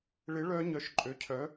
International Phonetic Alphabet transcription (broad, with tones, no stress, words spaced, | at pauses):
ɭɪ˨˦ ɭœ˦˥ɲœ˨˦ʃ ǃʼø˨˦cʰœ˨˦